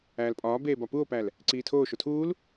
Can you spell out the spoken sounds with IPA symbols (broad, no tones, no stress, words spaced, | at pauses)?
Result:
æːlpʼɒː beːbɒpuo̯pæl | ǀiːtʰoː ʃotʰuːl